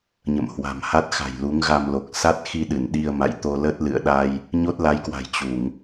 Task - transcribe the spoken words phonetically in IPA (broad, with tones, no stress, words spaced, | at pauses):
ɲə̰˧˨mhwa̤˨˩mha˦˥t̚ xa̤˨˩jlu˨˦ŋɣa˧mlo˨˩k̚ sa˦˥t̚xi˧ɗɨ˧˩n ɗi˧ə̯ma̰˧˨jt̪o˧lə˦˥t̚ lɨ̰˧˨ə̯ɗa˧j | ɲo˦˥t̚la˨˦jkwa̤˨˩j t͡ɕu˧˩˨ŋ